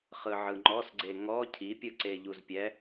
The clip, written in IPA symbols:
χ ɯ ʕ ɯ ŋ͡ǃ ɔ s ɡ͡ǀ e ŋ ɔ cʰ i pʲ ɯ ǀ e ʎ u z pʲ ɛ

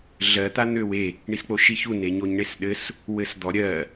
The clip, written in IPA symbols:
ɮ ɜ t̪ a n̪ ø w e | ɳ i s k͡p o ʃ i ç u n e ɲ o ɲ ɳ e s ɗ ɘ s | w ɘ s d̪ ɔ ɾʲ ɜ

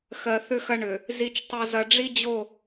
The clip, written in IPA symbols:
x ɜ˨ θ ʏ˦ x ɐ˦ ɳ ʏ˨ | z i˦ t͡ʃ tˤ o˦ z ɐ˦ ɖ͡ʐ i˦ d͡ʑ o˦˨

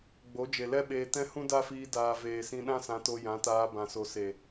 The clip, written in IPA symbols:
ɡ͡b o˨˦ d͡ʒ e˨ l ɛ˦ ɓ eː˧ t ɛ̃˧ h ũ˦ d a˦ f iː˧ d aː˨ v eː˨ s ĩ˧ ɗ ã˦ s ã˧ t o˧ j ã˨˦ t aː˧ b ã˨ s o˨ s e˨

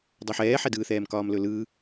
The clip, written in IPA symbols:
dˤ ɵ ħ ɛː ħ ɛ d ɯː θ ɛː m k ɒː m l ɵ l ɯ

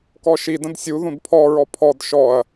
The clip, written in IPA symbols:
k ɔ ʃ i d ə̃ d sʲ u ð ũ d pʰ ɔ ɹ ɔ pʰ ɔ d ʃ ɔ ɐ̯

